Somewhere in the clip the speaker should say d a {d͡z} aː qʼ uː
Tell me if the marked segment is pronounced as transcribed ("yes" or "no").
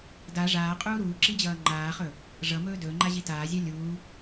no